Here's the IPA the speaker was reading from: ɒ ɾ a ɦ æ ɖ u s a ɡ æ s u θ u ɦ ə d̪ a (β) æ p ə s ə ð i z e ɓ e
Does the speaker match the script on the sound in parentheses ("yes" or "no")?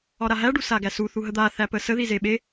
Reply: no